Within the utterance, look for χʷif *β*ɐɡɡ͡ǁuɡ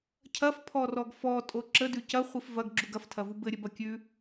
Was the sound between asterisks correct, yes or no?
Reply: no